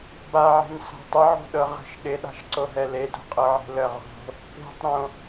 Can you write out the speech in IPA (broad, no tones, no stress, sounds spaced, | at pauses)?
b a ʕ e̤ n s a̤ tˤ ɪ ʕ o̤ ɗ ɤ ʁ ə̤ ʃ ɗ ɪ ɗ a̤ ʃ ǀ o ɦ ɛ l e d o̤ qʼ ɤ ʕ e̤ l ə ʁ o̤ | p e̤ tˤ ɾ õ